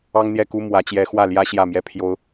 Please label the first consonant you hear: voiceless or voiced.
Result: voiced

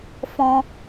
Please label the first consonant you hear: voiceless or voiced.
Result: voiceless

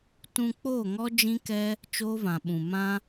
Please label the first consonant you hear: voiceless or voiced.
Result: voiceless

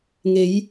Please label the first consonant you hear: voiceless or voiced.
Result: voiced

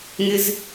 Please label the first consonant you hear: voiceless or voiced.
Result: voiced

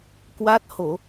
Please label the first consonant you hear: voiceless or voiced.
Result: voiceless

